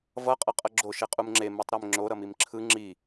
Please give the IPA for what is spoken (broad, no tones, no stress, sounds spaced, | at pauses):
v ʌ qʼ ʌ qʼ ʌ ɡ͡ǁ o ʃ e qʼ u m ŋ͡ǁ e m u tˤ ɾ e m ŋ͡ǁ o ɾ ʌ m i m ǁʰ ɯ ŋ͡ǁ i